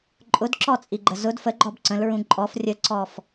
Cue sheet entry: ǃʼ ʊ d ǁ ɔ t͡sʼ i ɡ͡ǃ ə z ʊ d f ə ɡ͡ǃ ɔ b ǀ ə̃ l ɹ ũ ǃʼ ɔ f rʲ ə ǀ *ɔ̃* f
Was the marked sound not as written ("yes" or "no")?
yes